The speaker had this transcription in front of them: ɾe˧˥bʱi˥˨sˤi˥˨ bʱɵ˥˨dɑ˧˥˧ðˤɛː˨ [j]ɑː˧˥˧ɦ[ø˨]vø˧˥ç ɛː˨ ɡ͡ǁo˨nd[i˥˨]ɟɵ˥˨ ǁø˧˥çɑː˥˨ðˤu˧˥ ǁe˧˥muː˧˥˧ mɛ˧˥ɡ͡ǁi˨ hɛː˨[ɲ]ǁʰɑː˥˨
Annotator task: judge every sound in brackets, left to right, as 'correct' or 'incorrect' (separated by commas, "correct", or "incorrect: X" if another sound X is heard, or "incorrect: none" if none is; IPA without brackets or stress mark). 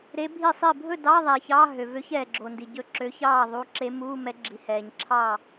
incorrect: ç, correct, incorrect: i˨, correct